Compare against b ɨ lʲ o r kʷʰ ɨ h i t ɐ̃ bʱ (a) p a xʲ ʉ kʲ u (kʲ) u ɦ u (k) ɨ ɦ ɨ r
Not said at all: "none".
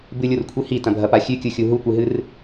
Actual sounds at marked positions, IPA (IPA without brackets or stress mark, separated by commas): ɐ, xʲ, kʷ